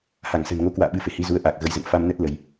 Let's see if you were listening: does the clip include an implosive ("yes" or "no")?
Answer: yes